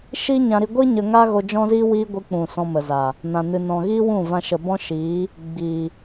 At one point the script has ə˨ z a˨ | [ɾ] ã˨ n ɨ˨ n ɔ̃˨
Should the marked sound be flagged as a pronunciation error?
yes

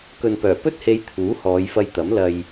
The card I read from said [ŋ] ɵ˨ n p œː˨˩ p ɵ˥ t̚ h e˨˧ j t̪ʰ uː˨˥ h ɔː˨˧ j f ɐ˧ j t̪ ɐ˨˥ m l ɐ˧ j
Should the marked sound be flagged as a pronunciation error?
yes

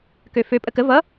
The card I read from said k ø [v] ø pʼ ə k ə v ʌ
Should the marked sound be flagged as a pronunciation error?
yes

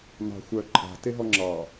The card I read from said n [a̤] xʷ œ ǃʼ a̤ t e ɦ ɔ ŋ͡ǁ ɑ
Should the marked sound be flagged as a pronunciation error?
yes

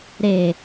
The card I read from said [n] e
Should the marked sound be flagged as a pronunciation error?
yes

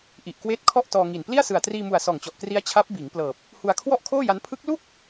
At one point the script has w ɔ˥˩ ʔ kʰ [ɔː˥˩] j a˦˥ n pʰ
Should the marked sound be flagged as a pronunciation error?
yes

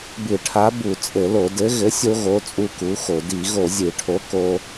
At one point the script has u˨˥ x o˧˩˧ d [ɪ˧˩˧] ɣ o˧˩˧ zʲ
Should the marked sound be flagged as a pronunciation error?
yes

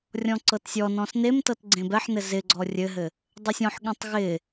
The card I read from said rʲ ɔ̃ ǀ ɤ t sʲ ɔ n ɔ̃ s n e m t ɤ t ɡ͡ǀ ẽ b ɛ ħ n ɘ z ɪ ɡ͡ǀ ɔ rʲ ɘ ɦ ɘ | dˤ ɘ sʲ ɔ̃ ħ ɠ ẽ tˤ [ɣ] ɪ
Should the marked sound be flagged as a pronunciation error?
no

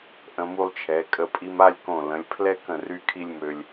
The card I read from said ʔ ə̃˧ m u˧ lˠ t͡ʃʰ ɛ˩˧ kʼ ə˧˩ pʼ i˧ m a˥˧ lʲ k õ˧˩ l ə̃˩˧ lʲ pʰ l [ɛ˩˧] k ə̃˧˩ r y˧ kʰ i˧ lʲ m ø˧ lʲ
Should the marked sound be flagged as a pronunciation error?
yes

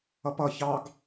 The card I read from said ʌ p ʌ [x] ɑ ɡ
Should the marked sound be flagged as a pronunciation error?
yes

